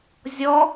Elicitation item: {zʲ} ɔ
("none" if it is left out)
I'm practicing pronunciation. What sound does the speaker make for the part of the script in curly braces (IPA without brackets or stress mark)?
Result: zʲ